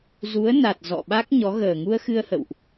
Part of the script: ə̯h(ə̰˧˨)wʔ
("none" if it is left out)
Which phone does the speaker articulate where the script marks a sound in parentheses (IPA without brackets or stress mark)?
ə̰˧˨